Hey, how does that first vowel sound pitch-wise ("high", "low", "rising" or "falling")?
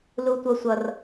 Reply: high